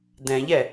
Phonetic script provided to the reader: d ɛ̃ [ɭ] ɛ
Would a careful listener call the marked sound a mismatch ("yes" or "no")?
yes